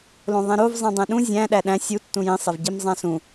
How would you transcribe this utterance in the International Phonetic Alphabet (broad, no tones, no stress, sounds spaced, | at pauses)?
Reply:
l õ ðˤ ẽ ɾ o v zˤ ĩ dˤ ẽ ɗ ũ zʲ æ̃ ɗ æ ɗ æ̃ sʲ u tː ũ j ĩ sˤ e v ɟ i m zˤ æ̃ s ũ